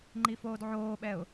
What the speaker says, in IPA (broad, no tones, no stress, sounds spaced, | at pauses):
ŋ͡ǃ i f oː d ʕ oː ɓ ɛ ʊ̯